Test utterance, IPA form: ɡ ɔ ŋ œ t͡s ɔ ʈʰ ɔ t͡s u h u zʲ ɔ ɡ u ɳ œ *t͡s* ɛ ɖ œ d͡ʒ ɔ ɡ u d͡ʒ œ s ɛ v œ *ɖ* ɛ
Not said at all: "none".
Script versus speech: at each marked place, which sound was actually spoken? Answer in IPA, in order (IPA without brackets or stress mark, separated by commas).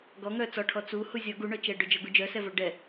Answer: t͡ʃ, ɖ